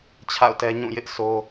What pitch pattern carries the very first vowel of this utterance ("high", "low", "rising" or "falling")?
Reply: falling